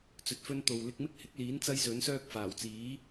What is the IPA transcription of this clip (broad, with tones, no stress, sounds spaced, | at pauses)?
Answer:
t͡s ɵ˨ t̚ f ɵ˧ n t̪ o˨ w l ɪ˧ k̚ m ɪ˥ k̚ h ɪ˨˥ k̚ l iː˨˥ n t͡s ɐ˥ j s ɵ˨˥ n s œː˥ k̚ f aː˨˩ w t͡s iː˨˥